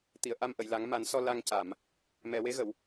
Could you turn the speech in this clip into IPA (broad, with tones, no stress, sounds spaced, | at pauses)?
t̪ i˨˩˨ ə̯ ʔ a˧ m ʔ ə˨˩˨ j l a˨˩˦ ŋ m a˨˩˦ n s ɔ˧ l a˧ ŋ c a˨˩˨ m | m ɛ˨˩˨ w e˧˥ ɣ ə˨˩˨ w